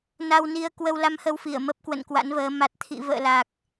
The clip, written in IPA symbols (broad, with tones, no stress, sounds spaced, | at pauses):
n a˧ w n i˧ ə̯ k w ə˧ w l a˧ m h ə˧ w f i˧˩ ə̯ m ə˦˥ p̚ k w ə̰˧˨ n k w a̰˧˥ n v əː˨˦ m a˨˩ t̚ t̪ʰ ḭ˧˨ v ə̰ː˧˨ l a˨˩ k̚